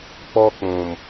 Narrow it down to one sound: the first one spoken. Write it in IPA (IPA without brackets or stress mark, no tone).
k͡p